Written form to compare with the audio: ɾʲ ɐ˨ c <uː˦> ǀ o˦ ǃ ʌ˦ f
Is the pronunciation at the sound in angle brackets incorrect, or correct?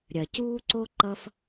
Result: correct